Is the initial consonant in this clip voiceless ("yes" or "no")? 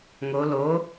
no